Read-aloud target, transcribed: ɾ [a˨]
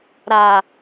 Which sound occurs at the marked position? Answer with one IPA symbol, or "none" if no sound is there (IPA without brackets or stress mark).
a˨